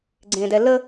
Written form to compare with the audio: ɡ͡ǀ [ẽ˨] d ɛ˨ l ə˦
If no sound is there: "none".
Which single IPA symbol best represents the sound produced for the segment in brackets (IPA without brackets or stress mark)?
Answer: ẽ˨